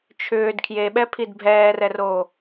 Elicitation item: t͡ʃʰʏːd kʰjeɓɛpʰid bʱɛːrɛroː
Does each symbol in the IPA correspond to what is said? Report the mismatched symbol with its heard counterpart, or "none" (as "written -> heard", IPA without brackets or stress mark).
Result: none